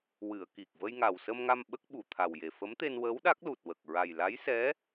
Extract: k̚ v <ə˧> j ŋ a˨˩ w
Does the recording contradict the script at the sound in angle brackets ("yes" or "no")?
no